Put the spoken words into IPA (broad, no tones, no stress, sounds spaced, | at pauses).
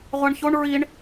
ʁʷ a ɳ ç o ɳ ɹ i ɳ